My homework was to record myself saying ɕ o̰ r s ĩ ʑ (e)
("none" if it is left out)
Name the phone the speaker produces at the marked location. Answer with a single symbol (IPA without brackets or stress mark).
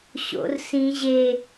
e